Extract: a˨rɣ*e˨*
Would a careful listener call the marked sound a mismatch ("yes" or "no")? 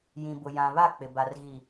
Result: yes